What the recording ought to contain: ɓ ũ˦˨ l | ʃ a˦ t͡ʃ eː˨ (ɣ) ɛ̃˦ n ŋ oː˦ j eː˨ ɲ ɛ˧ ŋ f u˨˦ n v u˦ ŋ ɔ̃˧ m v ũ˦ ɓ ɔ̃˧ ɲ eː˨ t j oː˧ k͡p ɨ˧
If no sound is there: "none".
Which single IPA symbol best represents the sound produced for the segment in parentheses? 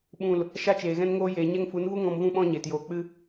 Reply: ɣ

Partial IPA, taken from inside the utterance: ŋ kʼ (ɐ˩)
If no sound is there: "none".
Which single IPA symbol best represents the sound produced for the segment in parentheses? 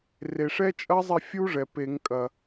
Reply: ɐ˩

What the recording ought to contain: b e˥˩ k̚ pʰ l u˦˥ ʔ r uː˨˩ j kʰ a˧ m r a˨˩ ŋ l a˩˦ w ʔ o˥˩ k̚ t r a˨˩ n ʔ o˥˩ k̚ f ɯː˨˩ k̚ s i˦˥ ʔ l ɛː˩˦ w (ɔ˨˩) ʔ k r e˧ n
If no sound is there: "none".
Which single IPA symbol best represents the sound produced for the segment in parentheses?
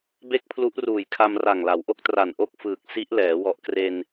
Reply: ɔ˨˩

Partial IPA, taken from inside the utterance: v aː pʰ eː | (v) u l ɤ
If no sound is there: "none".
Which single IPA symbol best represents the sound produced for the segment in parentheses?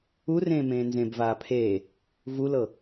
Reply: v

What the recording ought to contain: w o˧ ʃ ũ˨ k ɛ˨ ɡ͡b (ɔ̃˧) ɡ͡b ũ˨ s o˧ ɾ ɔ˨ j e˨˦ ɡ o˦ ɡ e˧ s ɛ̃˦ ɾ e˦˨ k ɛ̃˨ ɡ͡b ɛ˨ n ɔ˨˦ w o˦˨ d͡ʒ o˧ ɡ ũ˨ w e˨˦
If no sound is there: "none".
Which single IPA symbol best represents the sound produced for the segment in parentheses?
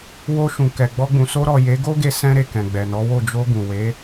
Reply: ɔ˧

